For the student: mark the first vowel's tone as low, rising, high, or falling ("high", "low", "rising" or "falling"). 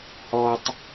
high